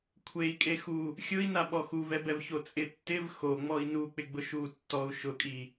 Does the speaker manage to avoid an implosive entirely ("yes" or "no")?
no